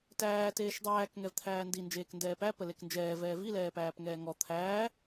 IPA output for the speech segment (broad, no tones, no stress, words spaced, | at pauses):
tæː teːʃdˤæːk ŋɛvt̪ʰæːndi nd͡ʒeːkndɛːpæ pəleknd͡ʒɛː vɛːvi lɛːpæːpŋɛːŋɔ t̪ʰæː